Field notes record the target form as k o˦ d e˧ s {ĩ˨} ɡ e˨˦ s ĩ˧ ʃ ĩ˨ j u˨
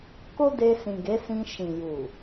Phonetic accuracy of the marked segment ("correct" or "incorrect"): correct